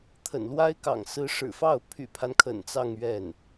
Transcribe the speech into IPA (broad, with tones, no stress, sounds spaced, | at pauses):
t̪ʰ ə̰˨˩ n l w a˥ ɪ̯ k ɑ̰˨˩ ŋ s ɹ̩˧˥ ʂ ɻ̩˨˩ f ɑ˥˩ ʊ̯ pʰ y̰˨˩ pʰ a˦ n kʰ ə̰˨˩ n t͡s ɑ˥˧ ŋ ɥ ɛ˥˩ n